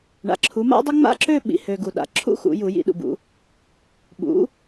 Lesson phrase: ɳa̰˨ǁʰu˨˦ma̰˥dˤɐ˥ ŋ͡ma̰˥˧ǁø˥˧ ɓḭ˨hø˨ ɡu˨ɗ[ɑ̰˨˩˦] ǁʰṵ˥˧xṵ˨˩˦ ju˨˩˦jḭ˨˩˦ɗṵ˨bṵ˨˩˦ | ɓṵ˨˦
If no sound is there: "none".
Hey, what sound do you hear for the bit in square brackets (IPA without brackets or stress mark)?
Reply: a̰˨˩˦